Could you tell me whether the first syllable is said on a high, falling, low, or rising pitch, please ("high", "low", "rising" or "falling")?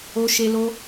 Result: high